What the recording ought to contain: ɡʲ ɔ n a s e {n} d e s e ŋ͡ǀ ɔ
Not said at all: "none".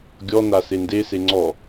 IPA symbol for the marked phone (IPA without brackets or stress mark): n